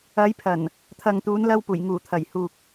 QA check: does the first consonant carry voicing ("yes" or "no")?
yes